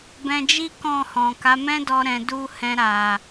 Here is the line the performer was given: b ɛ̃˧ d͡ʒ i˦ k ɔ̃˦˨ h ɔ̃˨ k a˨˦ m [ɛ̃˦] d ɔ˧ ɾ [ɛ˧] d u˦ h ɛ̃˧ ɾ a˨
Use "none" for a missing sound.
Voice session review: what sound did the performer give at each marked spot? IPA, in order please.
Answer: ɛ̃˦, ɛ̃˧

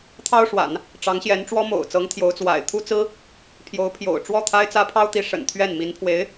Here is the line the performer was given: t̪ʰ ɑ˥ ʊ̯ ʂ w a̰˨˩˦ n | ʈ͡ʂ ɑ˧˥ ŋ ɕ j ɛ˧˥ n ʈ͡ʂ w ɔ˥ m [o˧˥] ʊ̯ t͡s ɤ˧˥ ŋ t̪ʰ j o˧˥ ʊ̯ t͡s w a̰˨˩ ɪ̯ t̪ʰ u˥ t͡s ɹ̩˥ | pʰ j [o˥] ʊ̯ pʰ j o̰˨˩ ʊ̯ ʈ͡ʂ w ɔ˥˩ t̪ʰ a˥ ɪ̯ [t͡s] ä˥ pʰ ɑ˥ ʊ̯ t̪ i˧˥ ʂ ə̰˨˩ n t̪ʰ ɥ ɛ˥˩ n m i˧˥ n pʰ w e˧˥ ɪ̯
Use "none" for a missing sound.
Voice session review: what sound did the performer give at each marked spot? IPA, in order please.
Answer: o̰˨˩, o˧˥, t͡s

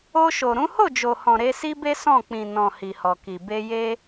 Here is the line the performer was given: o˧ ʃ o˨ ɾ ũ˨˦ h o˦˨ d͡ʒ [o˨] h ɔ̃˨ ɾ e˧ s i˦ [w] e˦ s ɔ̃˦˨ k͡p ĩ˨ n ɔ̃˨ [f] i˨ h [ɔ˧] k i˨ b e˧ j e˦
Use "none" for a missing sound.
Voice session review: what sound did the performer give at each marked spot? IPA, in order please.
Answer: o˨, b, h, ɔ˨

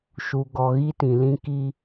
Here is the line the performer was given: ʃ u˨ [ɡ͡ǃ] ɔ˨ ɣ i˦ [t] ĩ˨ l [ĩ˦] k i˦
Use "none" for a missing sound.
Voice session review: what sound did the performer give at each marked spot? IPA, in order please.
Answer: ɡ, t, ĩ˦

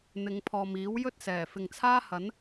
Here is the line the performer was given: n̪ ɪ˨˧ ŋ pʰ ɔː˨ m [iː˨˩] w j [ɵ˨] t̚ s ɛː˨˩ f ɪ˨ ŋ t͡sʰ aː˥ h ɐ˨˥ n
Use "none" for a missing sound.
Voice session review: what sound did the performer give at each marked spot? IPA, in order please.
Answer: iː˨˥, ɵ˥

